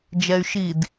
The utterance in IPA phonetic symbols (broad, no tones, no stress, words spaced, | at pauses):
d͡ʒɛy̯ʃid